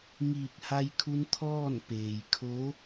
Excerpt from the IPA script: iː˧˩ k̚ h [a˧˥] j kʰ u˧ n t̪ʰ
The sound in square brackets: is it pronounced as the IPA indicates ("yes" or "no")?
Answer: no